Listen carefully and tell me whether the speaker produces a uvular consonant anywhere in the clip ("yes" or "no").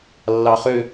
yes